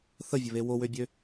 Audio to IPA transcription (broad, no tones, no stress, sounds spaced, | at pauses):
θ ə vʲ ə β e w o w ø bʲ ø